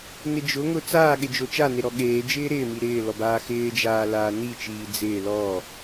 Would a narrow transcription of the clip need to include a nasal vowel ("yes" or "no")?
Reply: no